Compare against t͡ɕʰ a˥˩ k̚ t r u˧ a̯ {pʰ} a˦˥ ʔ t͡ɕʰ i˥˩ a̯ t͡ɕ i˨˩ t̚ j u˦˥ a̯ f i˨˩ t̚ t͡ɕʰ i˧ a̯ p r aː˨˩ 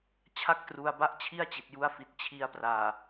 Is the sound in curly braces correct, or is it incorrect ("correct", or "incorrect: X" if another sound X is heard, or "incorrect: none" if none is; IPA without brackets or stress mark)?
incorrect: b